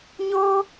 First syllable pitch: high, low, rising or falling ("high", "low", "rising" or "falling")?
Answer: high